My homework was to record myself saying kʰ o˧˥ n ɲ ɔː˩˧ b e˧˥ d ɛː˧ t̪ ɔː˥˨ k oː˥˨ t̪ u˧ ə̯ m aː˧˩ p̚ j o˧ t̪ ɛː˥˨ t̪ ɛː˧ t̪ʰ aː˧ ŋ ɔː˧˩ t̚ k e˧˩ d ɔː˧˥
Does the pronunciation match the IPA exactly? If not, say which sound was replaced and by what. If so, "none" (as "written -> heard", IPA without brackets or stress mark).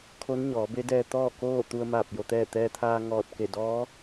none